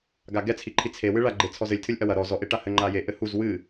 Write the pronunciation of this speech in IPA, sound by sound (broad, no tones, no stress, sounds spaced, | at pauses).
ɡ a ɡ ɛ t͡sʰ i ǃʰ i t͡sʰ e w ɨ ɭ a ɡ͡ǃ e t͡sʰ ɔ z ɘ lʲ tʰ ɨ lʲ ʔ ɐ w ɐ ɾ ɔ z ɔ ʔ e ʈ a h ɘ ŋ͡ǃ a j e ʔ ɘ h u z w ɨ